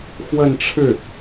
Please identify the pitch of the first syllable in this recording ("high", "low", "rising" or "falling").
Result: falling